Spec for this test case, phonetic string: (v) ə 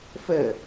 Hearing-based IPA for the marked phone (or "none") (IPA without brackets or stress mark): f